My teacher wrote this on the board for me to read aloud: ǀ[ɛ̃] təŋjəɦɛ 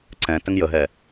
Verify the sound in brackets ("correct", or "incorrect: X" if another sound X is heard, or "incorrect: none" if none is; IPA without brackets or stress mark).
correct